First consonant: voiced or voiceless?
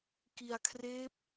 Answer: voiceless